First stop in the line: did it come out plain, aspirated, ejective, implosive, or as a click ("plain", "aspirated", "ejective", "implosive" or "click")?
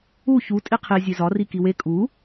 ejective